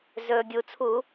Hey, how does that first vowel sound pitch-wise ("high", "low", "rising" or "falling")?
low